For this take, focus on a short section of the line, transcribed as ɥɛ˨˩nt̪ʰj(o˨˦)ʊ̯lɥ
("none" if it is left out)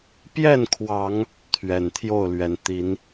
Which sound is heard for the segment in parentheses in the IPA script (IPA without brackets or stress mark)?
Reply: o˥˨